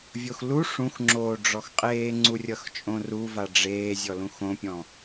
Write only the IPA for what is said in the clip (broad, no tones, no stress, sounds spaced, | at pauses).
vʲ o x l u ʂ ũ x ŋ͡ǁ oː ɖ͡ʐ ɔ x qʼ eː ŋ͡ǀ u rʲ ʌ x t͡ʃʼ õ r u v a ɖ͡ʐ eː zʲ ɔ l ũ x õ pʲ ɔ̃